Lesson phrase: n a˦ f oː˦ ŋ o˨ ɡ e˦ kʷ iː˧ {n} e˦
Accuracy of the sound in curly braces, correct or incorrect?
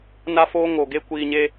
incorrect